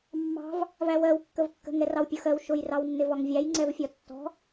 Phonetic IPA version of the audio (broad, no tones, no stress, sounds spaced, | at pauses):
mː ɑ̤ v | v æ w ɜ w kː ə v kː ə̤ ŋ ɛ r ɑ w pʲ ʊ x ɜ w ʃ ʊ j r ɑ w nː ɪ v ɒ ŋ vʲ æ j ŋ͡ǀ ɛ v fʲ ɒ tː ɔ̤